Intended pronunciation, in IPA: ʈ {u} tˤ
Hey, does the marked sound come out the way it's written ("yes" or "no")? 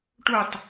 yes